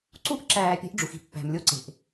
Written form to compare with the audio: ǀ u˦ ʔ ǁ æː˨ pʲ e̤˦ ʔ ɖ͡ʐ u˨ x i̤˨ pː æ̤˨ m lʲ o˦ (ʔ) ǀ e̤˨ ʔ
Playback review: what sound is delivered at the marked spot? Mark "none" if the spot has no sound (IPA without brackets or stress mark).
none